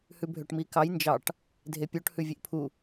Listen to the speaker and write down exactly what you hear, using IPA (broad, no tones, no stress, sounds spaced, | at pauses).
h ʉ bʱ ø ʈ m i k ɑ j n d͡ʒ ɑ ʈ | dʱ e pʲ o ʈ h ʉ vʲ e ʔ pʰ u